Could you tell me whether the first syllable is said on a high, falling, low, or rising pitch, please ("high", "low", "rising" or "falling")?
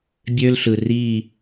high